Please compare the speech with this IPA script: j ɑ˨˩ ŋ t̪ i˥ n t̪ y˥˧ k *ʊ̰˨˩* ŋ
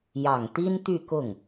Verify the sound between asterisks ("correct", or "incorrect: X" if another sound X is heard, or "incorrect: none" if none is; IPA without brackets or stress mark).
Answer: incorrect: ʊ˥˩